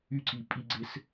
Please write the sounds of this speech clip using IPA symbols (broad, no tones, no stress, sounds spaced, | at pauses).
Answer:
y ǀ i pʼ i ɡ͡ǀ e s